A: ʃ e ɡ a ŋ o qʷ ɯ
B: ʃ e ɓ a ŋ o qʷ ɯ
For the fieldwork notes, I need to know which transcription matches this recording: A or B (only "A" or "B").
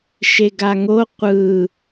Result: A